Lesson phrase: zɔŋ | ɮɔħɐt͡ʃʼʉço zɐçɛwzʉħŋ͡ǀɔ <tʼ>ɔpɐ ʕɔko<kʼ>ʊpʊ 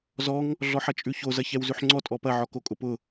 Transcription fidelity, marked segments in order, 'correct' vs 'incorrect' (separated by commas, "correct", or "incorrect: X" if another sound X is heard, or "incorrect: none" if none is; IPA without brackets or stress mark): correct, correct